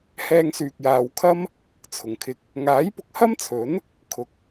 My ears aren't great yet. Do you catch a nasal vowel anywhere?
no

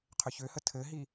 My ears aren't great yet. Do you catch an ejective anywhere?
no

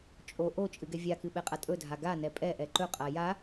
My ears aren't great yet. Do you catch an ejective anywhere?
yes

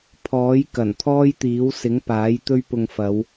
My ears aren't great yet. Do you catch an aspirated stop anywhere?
yes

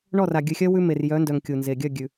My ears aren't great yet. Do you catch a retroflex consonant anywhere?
yes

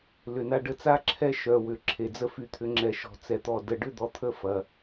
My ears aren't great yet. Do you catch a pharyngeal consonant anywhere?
no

